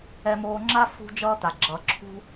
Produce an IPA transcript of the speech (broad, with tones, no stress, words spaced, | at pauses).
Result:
ɛ˧moː˧ŋ͡ǁa˥ fṳ˧ d͡ʒʌː˥t̪a˩ ɡ͡ǁʌ˩ǁʰṳ˧